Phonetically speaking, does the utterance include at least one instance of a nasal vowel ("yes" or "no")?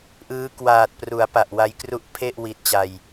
no